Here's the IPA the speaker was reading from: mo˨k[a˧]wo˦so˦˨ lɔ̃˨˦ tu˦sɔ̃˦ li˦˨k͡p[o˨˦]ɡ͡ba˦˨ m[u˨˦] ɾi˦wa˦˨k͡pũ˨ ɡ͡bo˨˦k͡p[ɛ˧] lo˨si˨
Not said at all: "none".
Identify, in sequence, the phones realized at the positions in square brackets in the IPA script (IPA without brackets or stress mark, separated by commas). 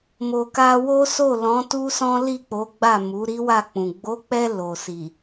a˧, o˨˦, u˨˦, ɛ˧